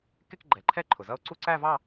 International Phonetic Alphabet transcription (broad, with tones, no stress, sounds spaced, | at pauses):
k ɪ˥˧ k ɡ͡ǃ ɛ˨˩ ǃʰ ɛ˥˧ ǃʰ ʊ˨˩ z ʌ˥˧ o̯ ǀ u˥˧ ǀ æ˥˧ v ɑ˥˧